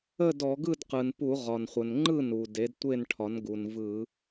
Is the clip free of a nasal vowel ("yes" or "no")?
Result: yes